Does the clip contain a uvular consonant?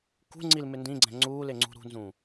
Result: no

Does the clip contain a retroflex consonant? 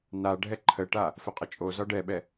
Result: yes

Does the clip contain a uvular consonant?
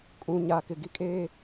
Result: no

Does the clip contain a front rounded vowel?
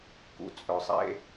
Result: yes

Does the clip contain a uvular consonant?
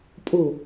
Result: no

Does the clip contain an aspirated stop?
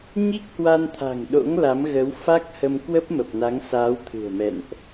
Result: yes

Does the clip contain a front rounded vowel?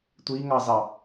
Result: no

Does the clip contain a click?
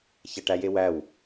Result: no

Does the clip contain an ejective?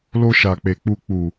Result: no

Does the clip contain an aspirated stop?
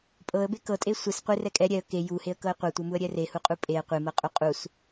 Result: no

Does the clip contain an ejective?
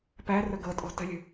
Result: yes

